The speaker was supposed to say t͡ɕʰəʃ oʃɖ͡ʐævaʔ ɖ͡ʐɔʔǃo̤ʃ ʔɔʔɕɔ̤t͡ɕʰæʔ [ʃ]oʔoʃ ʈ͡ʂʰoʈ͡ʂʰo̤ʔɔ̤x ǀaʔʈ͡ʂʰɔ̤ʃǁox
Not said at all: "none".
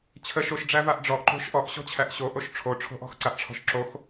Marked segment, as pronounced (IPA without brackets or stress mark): ɕ